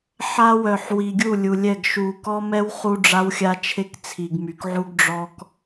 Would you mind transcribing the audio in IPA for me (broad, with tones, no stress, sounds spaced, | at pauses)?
ħ a˦ w œ˨ ħ w i˨ ɡʲ u˦˨ lʲ u˨ lʲ ɛ˦˨ ɡ ʃ u˨ k ɔ˦ m ɛ˦ w χ u˦ ɖ͡ʐ a˦ w xʲ a˦ t͡ʃʰ e˦ k t͡sʰ i˨ ɡ m y˨ k ʕ u˦ ɡ ɖ͡ʐ ɔ˦ k